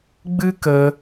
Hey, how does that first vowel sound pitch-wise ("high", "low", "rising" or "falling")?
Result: high